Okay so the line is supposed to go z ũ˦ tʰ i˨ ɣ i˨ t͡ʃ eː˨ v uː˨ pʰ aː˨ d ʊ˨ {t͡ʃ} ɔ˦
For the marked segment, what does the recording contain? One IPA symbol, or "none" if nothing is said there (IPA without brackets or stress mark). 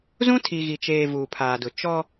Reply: t͡ʃ